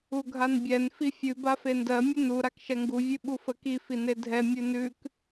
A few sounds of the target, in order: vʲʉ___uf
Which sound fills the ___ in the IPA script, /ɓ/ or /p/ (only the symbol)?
ɓ